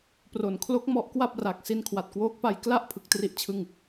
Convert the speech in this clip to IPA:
p r o˩˦ n kʰ l o˦˥ k̚ m ɔ˦˥ ʔ k w a˥˩ p̚ r a˨˩ k̚ s i˧ n kʰ w a˨˩ t̚ k w oː˦˥ k̚ p a˧ j k l a˥˩ ʔ pʰ ɯ˨˩ k̚ t r i˥˩ ʔ t͡ɕʰ ɯ˥˩ ŋ

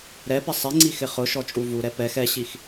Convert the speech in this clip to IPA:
ɾ ɛ p ɪ sˤ ɪ ŋ͡ǀ i x ɪ χ ʊ ʃ ɔ t͡ʃʼ u v u ɾ ɛ p ɛ x ɛ ɕ i x

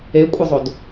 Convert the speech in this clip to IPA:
e kʷʼ ə zˤ o d

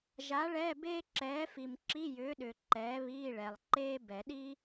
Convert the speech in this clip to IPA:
ʒ a˨˥ ɭ ɛː˧˥˧ b eː˥ ǁ ɛː˨˥ f i˨ m ǁ i˧˥˧ j ʏː˨˥ ɗ ʏː˨ ǃ ɛː˨˥ β iː˧˥˧ ɭ ɛ˨ lˠ ǃ eː˥ b ɛ˨˩˦ ɗ i˥

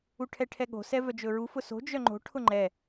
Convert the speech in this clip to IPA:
u ʈʰ ɛ ʈʰ ɛ ɠ o̤ s ɛ v œ d͡ʒ ɵ ɹ u f ʊ s o̤ d͡ʒ œ ŋ͡ǃ o̤ ʈʰ ʊ ŋ͡ǃ ɛ

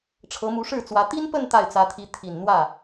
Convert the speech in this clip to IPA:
ʈ͡ʂʰ ɤ˧˥ m u˧˥ ʂ ɻ̩˥˩ t͡s w ä˧˥ t̪ i˥ n p ə˥˧ n t̪ a˥˩ ɪ̯ t͡s ä˧˥ t̪ʰ i˧˥ t̪ʰ i˨˩ n n̪ w ä˥˩

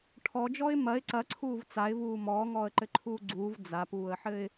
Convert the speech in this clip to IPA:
ʈʰ ɔ d͡ʒ ɔ ɪ̯ m ɐ ɪ̯ ǀ ɐ ǀʰ uː v t͡s a ɪ̯ v uː m ɔː ŋ ɔː ə̯ ǃ ɘ ǃʰ uː ɡ͡ǀ uː v d͡z a p uː ə̯ ħ ɘ ɪ̯

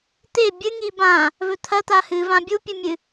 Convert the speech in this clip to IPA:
t̪ e bʲ ɨ ŋ i b ã | v ɵ t̪ʰ ɐ t̪ a h ɨ v ã bʲ u pʲ ɨ mʲ ɨ

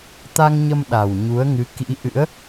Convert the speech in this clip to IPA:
t̪ a˧ ŋ ɲ ə˧ m ɗ a˨˩ w ɲ u˨˦ ə̯ ŋ ɨ˨˦ k ḭ˧˥ ʔ ɨ̰˧˥ ə̯

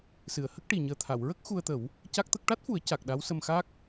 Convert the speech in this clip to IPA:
s ɨ˨˩˨ ə̯ h ə˦˥ k̚ ʈ i˨˩ ɲ əː˨˩ t̪ʰ a˨˩˨ w ɹ ə˦˥ k̚ x u˧ ə̯ t̪ ə˨˩˦ w | c a˦˥ k̚ t̪ ə˦˥ k̚ ʈ a˦˥ t̚ f u˨˩˦ ə̯ c a˨˩ k̚ ɗ a˧˥ w s ə˧ m x a˦˥ k̚

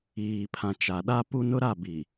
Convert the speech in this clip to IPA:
iː˨ pʰ ã˨ t͡ʃ a˨ ɗ a˦ p u˦ n ʊ˦ ɾ a˦˨ b i˨

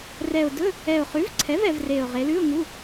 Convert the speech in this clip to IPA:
r ɛ˨˩ ʊ̯ d ɵ˧˥˧ | ɛ˨˩ ʊ̯ χ ʉ˩˥ v ǀʰ ɛ˩˥ v ɛ˩˧ v r e˨˩ ʊ̯ ʁ e˩˧ l ʉ˧˥˧ ʊ̯ ŋ u˧˥˧

